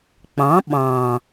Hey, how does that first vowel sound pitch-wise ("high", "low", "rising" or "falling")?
rising